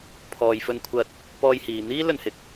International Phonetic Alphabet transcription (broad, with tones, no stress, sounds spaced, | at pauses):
pʰ ɔː˨ j f ɵ˧ n kʷʰ ɐ˧ t̚ | p ɔː˧ j h iː˨ n̪ iː˥ l ɵ˧ n h ɪ˨˥ k̚